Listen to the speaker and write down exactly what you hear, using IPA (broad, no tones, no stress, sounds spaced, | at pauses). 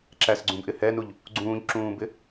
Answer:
ǁ æ s ɡ͡ǀ ũ b ʔ ɪ h ɛ n u ʎ | ɡ͡ǀ ũː ʎ ǁ ũː b ɪ